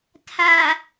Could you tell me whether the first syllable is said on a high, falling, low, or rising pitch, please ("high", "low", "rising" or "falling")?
low